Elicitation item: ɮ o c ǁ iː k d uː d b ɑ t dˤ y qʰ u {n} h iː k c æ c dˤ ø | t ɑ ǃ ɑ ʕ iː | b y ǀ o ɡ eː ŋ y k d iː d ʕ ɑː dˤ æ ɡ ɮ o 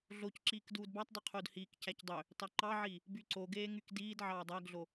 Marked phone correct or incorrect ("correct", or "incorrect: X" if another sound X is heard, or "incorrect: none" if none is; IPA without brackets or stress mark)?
incorrect: d